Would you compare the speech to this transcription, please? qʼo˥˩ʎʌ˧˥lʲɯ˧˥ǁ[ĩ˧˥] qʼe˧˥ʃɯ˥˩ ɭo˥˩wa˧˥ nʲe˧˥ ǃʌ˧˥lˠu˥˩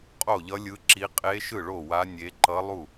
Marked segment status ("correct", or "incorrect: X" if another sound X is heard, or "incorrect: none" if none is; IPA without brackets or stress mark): incorrect: i˧˥